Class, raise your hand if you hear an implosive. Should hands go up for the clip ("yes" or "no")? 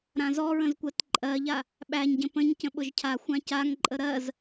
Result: yes